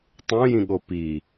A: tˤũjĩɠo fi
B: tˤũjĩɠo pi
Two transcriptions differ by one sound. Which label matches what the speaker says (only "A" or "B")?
B